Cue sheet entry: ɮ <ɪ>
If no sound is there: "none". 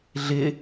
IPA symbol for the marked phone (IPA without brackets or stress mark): ɪ